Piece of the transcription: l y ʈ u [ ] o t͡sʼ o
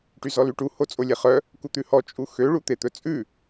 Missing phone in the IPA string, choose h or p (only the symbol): h